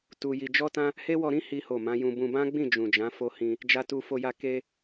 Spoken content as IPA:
t u˧ j i˧ d͡ʒ ɔ˦ t ã˦ | h e˦ w ɔ˧ ɾ ĩ˦ h i˦ h o˦˨ m ã˨˦ j ũ˧ b ũ˧ b ã˦ ɡ͡b ĩ˦˨ d͡ʒ ũ˨ d͡ʒ ã˨˦ f o˧ h ĩ˧ | d͡ʒ a˧ t u˧ f o˧ j a˧ k e˧

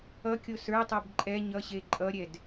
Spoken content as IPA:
ʌ kʲ o s ə˞ tˤ ɛ b ǃʼ ɛ ɲ ʌ ɕ e ǃʼ ʌ ɾʲ ɛ d

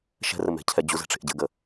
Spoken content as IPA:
ʃ ɛ̤ r ə m ɛ̤ cʰ ɛ d͡ʑ u z ɛ̤ ʈ͡ʂ e̤ ʔ ɟ ɘ ɡ ə

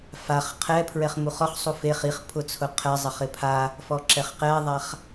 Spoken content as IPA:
f a χ qʰ ɛ pʰ ɹ ɛ χ m u χ ɔ χ sˤ u f e χ i χ pʰ ʊ t͡sʰ ʊ qʰ ɛ zˤ ɪ χ ɪ pʰ a | f ɔ ǁ ɛ χ q ɛ ðˤ a χ

